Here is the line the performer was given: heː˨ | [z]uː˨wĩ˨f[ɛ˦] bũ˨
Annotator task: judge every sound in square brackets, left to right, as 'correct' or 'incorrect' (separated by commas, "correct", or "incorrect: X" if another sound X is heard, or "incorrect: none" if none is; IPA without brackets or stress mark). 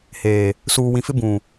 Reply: incorrect: s, incorrect: ɪ˦